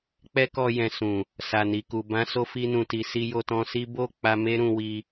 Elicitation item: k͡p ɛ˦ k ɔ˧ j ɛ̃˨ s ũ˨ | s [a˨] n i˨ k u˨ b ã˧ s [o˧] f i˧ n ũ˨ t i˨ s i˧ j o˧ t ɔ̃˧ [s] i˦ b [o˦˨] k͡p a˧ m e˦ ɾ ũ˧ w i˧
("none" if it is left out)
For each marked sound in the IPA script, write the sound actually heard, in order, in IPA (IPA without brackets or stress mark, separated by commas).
a˨, o˧, s, o˦˨